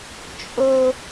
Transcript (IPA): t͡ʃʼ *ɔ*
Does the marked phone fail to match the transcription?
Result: yes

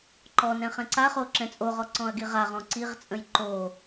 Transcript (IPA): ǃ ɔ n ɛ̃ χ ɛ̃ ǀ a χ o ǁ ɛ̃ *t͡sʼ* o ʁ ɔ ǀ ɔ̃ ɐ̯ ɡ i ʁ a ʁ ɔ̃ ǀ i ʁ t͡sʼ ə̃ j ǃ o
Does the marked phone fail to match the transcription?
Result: no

